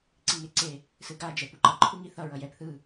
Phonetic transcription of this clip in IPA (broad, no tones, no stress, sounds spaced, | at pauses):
ǀ i ŋ e ǀ e | s ɯ ɡ a d͡ʒ ɛ p u ǃ ʌ ǃʰ u ŋ i θ ʌ ɹ ʌ j ɛ p θ ɯ